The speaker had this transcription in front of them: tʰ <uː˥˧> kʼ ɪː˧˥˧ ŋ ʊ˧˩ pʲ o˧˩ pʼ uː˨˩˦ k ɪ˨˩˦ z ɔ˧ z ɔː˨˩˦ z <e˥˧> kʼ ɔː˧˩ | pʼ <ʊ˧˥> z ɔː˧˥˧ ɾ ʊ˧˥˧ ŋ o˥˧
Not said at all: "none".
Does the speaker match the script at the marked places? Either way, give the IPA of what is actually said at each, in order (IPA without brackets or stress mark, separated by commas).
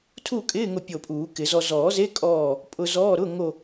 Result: uː˥˧, e˧˥˧, ʊ˧